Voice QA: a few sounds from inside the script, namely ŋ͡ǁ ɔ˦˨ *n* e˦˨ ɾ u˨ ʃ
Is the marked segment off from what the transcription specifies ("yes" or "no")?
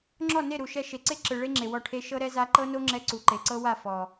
no